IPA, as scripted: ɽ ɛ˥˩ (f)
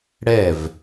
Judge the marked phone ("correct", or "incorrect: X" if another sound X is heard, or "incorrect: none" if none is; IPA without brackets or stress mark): incorrect: v